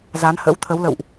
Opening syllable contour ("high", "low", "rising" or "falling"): rising